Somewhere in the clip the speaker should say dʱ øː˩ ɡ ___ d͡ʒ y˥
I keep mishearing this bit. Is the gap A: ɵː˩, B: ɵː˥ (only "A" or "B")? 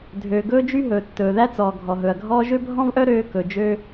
B